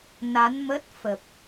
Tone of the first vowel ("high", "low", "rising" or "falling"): rising